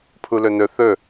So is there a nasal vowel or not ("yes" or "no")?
no